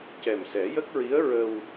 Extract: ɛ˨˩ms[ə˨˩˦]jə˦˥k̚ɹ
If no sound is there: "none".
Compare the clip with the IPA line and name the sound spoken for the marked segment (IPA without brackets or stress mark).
ɛ˨˩˦